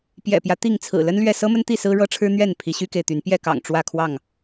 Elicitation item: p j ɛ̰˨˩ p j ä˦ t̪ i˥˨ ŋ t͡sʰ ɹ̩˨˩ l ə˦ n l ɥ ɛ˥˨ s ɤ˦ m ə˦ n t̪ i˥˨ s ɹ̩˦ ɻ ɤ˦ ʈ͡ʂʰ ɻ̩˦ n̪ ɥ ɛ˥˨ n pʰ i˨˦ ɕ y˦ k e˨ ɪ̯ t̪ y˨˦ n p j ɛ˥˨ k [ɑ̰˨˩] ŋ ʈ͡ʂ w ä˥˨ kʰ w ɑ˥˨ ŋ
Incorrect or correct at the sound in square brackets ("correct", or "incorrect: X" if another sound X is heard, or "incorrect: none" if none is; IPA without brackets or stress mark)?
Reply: correct